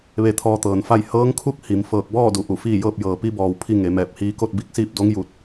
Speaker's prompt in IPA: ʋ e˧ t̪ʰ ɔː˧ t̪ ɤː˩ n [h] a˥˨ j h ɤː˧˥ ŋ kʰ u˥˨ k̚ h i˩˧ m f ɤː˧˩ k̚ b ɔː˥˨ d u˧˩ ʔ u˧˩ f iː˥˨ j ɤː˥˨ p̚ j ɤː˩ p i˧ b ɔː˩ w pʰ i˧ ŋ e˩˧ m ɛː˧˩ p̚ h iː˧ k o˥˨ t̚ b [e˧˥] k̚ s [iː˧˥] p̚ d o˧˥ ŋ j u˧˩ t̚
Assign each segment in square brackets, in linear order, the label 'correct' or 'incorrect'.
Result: incorrect, incorrect, incorrect

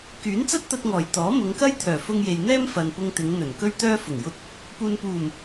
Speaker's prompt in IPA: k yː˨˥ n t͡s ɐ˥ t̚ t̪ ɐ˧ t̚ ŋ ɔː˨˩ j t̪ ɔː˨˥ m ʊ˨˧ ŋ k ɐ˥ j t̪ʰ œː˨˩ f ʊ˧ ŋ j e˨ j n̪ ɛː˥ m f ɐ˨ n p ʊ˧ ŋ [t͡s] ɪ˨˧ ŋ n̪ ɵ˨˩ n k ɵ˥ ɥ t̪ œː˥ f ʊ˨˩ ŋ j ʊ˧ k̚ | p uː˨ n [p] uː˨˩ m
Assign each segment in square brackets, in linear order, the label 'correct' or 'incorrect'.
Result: incorrect, correct

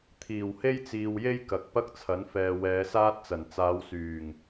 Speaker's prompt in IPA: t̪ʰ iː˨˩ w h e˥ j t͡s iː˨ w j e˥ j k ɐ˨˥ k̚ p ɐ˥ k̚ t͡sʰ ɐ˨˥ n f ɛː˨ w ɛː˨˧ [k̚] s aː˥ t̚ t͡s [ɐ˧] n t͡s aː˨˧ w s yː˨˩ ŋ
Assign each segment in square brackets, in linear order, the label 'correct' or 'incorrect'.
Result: incorrect, incorrect

